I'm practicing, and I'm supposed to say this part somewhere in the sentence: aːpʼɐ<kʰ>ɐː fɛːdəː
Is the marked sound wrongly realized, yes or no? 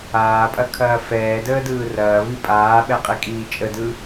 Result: no